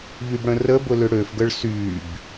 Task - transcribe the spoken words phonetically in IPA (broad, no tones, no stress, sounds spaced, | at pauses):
ʎ y b ɽ ə̃ r ə b ʊ l ʏ ɽ ø f ɡ ə ɭ s y b